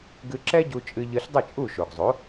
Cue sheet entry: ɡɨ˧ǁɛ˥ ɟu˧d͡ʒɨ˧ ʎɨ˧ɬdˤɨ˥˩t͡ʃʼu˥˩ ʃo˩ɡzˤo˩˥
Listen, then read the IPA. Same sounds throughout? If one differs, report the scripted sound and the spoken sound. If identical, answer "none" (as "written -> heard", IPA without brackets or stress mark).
d͡ʒ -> t͡ʃʼ